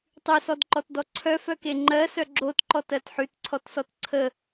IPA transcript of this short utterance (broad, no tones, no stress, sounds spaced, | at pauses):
tˤ ʉ s ɔ d ǃ ɔ t d ɔ ǀʰ œ f œ k e ŋ͡ǃ ɜ s œ ɡ͡ǁ o t ǃ ɔ t ɜ t ħ ʉ t ǀʰ ɔ t s ɔ t ǀʰ ə